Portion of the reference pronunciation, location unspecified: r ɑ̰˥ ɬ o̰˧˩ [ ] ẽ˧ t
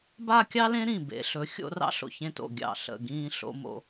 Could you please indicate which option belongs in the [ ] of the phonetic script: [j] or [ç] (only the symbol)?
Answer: ç